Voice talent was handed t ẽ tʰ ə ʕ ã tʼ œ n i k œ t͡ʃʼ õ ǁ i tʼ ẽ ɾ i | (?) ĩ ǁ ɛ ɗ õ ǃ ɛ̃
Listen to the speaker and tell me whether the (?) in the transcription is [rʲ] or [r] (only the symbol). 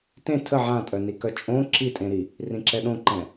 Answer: r